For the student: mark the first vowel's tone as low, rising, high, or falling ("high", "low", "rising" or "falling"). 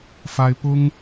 high